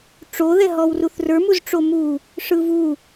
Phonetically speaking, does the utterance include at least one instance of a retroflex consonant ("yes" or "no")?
yes